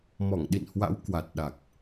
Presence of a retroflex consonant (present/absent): absent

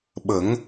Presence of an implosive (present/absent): present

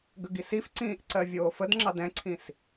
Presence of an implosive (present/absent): absent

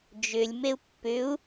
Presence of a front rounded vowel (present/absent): present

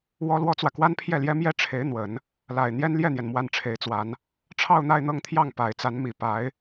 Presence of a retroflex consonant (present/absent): present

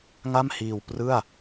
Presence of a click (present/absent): absent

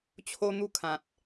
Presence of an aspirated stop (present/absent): present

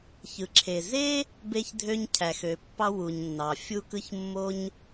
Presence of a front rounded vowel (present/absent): present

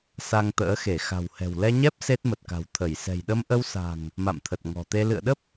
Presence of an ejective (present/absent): absent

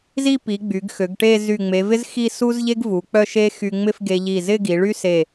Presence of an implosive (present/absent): absent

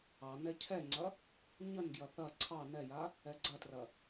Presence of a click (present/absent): present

